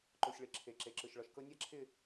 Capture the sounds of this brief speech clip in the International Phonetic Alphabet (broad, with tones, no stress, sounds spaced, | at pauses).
ǃ o˨ sʲ ɭ ɪ˨ ǁʰ e˨ ǁ e˨ ǁ ɯ˨ ʃ ɭ ɔ˨ ʃ k ɤ˧ nʲ a˦ ǁʰ ɪ˦˨